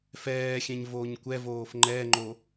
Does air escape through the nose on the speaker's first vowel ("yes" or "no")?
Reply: no